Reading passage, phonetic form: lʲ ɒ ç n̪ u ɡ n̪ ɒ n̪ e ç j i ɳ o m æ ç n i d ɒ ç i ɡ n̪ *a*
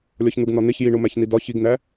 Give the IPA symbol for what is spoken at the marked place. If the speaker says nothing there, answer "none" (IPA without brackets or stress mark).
æ